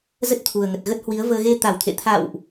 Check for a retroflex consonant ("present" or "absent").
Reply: absent